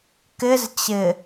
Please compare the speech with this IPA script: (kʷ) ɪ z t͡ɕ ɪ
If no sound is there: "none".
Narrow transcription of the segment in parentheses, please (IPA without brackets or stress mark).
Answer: k